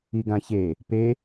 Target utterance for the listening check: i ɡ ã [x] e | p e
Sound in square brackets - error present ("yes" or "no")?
yes